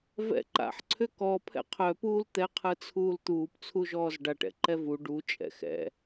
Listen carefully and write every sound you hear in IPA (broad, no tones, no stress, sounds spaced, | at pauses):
v ɛ̰ ǃ a̰ ħ ǀʰ ʏ k ɔ pʰ ɛ̰ qʰ œ p uː l t̪ ɛ qʰ ɯ t͡sʰ uː l t̪ uː p t͡sʰ u ʒ ɔː z ɖ a ʈ ɛ̰ ǃ ɛ v u ɖ u t͡ʃʼ ɛ̰ x ɛ̰